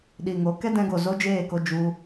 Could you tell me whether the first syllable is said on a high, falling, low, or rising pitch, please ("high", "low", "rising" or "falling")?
low